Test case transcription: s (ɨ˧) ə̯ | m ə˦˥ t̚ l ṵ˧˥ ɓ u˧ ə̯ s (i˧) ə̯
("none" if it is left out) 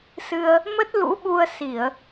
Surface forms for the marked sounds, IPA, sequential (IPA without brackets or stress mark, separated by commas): ɨ˧, i˧˩˨